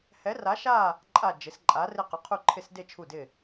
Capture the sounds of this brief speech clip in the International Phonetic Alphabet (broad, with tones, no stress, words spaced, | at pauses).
hɛ˧˥ra˧˥ʃa˥˧ | ǃʼa˥˧ d͡ʒɪ˧˥s ǃʼa˧˥rɪ˥˧qʊ˧˥ qʰu˥˧ǃʰɪ˥˧sde˥˧ t͡ʃʰu˥˧dɪ˥˧